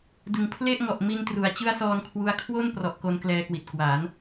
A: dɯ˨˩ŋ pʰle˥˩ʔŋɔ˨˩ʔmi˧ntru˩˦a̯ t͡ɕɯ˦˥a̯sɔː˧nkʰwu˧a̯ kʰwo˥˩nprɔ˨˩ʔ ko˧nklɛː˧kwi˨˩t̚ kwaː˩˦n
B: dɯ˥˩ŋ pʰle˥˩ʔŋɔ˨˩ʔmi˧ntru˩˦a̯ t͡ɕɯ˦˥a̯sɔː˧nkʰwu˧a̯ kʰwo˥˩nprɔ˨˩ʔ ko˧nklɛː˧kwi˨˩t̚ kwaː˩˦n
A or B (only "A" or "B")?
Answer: A